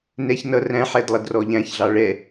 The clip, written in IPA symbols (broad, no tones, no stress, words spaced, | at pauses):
nɛç nʌ ræ̃ħɛd lˠʌdrɔʎæ̃çɮɑ ɭɛ